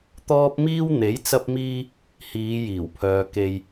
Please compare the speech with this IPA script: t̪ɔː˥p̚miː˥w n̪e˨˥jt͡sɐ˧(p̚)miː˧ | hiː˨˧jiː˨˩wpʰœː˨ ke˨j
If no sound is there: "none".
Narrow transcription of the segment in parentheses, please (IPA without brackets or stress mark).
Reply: p̚